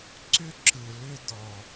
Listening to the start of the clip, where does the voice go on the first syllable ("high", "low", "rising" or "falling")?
high